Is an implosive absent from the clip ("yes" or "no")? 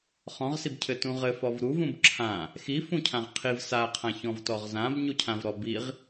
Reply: yes